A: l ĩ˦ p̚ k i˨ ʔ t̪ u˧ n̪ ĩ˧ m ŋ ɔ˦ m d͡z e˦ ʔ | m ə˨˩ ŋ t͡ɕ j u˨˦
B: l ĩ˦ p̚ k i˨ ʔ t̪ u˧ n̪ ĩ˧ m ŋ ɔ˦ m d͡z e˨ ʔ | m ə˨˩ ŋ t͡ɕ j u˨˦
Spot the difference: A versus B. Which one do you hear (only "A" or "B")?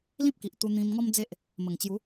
A